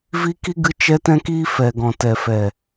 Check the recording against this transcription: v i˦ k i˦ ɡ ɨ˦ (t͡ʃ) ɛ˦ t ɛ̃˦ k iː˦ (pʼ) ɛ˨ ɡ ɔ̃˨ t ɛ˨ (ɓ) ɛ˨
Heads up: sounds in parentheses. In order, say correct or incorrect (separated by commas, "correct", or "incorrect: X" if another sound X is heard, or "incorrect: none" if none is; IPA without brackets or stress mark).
correct, incorrect: f, incorrect: f